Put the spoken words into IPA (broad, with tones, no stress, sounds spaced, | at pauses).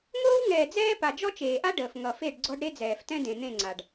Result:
ŋ oː˦ w ŋ ɛː˨ d͡z ɛː˦ p a˨ d͡ʒ ɔ˦ t͡ʃ eː˨ ʔ a˦ ɖ əː˨ f ŋ ʌ˨ f e˦˨ ɖ ɡ͡ǀ ɔ˦ ɖ ɾ e˦ d͡z ɛː˨ f t ɛ̃˦ d ẽ˨ n̪ ẽ˦˨ ŋ͡ǀ a˨ ɖ